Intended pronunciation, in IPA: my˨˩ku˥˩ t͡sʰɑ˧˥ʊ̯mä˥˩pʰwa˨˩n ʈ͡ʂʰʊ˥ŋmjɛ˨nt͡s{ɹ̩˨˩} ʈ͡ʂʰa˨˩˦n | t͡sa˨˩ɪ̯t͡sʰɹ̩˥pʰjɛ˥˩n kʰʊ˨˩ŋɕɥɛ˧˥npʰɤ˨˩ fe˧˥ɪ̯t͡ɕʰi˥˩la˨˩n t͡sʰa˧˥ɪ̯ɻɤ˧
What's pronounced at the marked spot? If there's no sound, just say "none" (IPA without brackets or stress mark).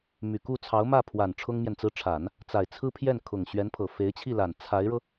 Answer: ɹ̩˥